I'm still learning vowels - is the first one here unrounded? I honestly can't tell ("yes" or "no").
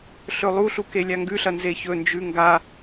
no